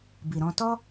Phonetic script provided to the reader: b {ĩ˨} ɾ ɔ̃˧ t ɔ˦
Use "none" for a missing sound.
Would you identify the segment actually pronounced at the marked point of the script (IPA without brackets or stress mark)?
i˨